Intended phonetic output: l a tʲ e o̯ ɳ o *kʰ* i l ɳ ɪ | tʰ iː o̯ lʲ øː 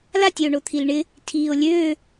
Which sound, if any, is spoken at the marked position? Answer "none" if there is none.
t̪ʰ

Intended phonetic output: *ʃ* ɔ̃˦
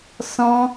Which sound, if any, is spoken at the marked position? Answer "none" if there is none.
s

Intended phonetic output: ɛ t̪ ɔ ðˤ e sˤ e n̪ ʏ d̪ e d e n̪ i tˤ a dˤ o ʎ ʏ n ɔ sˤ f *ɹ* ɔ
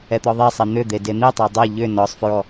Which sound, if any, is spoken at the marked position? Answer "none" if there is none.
ɹ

